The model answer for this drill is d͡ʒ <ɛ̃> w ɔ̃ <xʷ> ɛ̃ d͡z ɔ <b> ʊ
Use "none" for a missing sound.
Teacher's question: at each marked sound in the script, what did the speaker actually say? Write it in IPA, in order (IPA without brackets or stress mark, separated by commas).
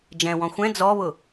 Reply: ɛ̃, xʷ, β